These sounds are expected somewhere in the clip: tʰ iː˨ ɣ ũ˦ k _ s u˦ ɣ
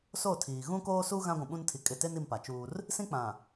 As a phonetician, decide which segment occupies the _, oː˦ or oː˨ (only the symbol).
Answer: oː˦